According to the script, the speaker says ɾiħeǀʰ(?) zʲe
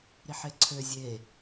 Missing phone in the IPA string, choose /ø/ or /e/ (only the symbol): ø